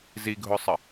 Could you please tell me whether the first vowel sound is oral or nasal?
oral